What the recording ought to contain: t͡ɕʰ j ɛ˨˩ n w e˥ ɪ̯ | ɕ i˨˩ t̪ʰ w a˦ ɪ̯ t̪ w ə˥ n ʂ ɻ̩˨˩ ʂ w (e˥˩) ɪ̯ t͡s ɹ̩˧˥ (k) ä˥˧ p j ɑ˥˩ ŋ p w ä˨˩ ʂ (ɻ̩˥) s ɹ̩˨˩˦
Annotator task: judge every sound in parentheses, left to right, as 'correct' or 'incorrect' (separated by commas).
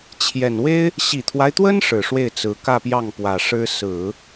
correct, correct, correct